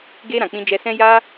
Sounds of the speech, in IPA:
ɡe˧ ɾã˨k͡pĩ˧d͡ʒɛ˧sɛ̃˦ ja˦

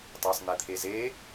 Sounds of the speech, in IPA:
tˤɑsˤn̪ɛt̪ʰeze

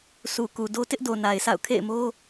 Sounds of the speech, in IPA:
su˨ ku˨do˦ tɪ˦ʔdo˨ na˨ɪ̯sʰa̰˦˨ʊ̯ kʰḛ˦˨ɪ̯mo˦

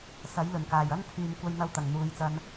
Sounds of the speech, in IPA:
sɐ˨˥jlɵ˨˩nkaː˨˩j ɐ˥npʰyː˨m kʷɐ˧jn̪ɐ˧wt̪ɐ˨˩ŋ n̪uː˨˧jt͡sɐ˧n

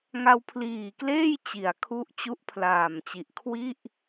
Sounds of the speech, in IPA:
ŋa˧wpʰliː˨˩kleː˥˩j t͡ɕi˩˦a̯ kʰu˦˥ʔt͡ɕu˦˥ʔpʰlaː˨˩mt͡ɕi˨˩ʔ kʰwi˥˩ʔ

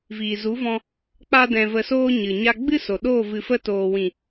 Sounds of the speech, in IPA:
viː˨zu˨˦vɔ̃˧ | k͡pa˦dɛ̃˧və˧soː˦ ɲɨ˨ɲa˦ ɡ͡bɨ˦so˨ɗoː˦˨ vɨ˧fə˦ toː˨wĩ˨

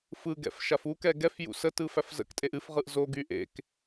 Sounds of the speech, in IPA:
fɯɡɛ̰f ʃafukɛ ɡɛf jṵsətɯ fæfzə̰ktʼeʔ ɨfʁɯʔ zoɡy ʔḛk

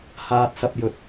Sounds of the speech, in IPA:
haː˧t̚sɐ˧p̚jɵ˨t̚

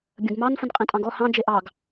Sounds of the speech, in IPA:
bʲə̃ɡmɑn fə̃nqʼẽtʼɑ̃ɡɔ hɑ̃ d͡ʒeʔɑɡ

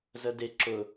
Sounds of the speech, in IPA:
zəde ǁʊ

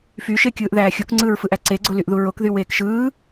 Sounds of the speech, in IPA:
fyʃekʲɯːʔðæː xʲukŋ͡ǀɯːɹfɯʔæ ǀeɡ͡ǀolyʔðu ɹokðyweːk ʃɯː

